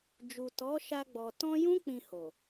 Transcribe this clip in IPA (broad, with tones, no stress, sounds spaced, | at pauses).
d͡ʒ u˨ t ɔ˨˦ ʃ a˧ ɡ͡b ɔ˨ t ɔ̃˧ j ũ˦ k͡p ĩ˧ h o˨